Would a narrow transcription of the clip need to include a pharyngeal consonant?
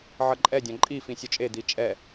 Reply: yes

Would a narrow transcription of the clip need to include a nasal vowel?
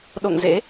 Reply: no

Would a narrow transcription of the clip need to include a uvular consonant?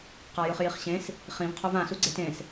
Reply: yes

